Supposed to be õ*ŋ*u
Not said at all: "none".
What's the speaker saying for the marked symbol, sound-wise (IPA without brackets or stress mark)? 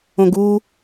ɡ